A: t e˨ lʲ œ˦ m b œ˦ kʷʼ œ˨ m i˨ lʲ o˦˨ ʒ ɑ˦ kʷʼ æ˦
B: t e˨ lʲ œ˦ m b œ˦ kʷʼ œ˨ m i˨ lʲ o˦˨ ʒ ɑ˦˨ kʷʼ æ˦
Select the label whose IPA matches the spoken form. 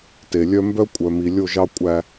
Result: A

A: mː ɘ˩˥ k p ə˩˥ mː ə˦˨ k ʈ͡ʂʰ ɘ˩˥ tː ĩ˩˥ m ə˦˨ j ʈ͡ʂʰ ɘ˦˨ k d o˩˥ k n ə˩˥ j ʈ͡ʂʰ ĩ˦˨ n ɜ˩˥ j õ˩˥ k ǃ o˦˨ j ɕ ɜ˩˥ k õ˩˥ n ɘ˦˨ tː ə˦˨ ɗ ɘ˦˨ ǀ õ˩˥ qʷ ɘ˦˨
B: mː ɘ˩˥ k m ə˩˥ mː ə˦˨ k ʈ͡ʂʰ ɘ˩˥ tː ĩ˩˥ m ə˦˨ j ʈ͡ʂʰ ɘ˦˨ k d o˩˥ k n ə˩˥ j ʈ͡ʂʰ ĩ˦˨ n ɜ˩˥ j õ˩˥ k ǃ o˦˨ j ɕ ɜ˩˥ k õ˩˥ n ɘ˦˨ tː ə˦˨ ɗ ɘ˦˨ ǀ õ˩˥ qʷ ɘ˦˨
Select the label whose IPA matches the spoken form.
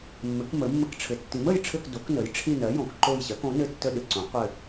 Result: B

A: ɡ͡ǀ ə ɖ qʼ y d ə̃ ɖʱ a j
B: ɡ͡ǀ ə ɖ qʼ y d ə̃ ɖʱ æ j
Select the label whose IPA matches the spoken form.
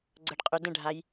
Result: A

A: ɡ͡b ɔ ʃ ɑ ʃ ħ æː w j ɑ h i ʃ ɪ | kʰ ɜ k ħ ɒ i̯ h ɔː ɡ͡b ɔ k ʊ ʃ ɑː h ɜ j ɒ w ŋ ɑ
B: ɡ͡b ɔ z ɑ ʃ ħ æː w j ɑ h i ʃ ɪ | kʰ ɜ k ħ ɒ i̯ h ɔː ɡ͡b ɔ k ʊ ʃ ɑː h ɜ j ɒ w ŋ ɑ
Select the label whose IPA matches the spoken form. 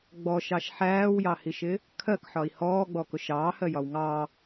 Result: A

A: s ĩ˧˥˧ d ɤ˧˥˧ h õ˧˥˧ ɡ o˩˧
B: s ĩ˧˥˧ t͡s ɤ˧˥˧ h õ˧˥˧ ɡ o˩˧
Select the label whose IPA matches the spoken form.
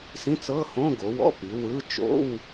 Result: B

